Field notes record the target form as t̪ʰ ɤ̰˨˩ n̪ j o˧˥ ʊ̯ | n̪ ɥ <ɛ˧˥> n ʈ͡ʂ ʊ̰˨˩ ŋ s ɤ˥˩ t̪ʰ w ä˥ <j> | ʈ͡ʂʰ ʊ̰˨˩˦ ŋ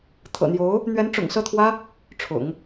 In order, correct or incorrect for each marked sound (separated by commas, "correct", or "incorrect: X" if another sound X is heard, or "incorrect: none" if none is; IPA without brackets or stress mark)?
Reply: correct, incorrect: none